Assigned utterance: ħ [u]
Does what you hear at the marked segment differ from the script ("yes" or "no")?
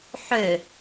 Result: yes